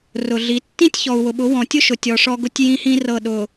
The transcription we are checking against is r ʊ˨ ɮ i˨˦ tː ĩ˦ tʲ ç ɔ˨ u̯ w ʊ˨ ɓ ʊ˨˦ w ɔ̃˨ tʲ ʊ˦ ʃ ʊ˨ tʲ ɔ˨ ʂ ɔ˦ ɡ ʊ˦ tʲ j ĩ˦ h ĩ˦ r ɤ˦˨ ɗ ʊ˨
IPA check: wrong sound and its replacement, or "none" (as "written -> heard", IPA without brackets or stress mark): none